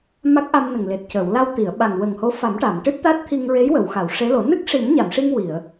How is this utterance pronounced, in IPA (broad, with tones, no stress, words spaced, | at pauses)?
ma˦˥k̚ʔa˧mnə˨˩ŋ le˨˩t̚cəː˨˩˨wla˧w t̪i˨˩˨ə̯ɓa˨˩ŋ wə˨˩ŋho˧˥fa˨˩˦mʈa˨˩˨m ʈɨ˦˥t̚t̪a˦˥t̚t̪ʰi˧ŋɹe˧˥j wə˨˩˨wxa˨˩˨w ʂe˧˥lo˨˩˦ nɨ˦˥k̚ʂi˨˩˦m ɲa˨˩˨mʂi˧ŋwi˨˩˨ə̯